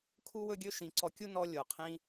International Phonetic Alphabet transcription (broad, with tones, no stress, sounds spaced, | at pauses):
kʰ u˦ w ɵ˦ ɡʲ ɵ˦ ʃ ĩ˨˦ ǀ ɔ˧ kʲ u˦ n ɔ˦ lʲ o˨ qʰ ĩ˦